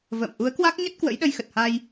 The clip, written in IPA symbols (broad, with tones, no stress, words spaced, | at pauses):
və̰ː˧˨m ʔu˨˦ə̯kwa˦˥k̚ɲə˦˥t̚ kwə̰˧˥jɗə˧jxə˨˩t̚ha˧j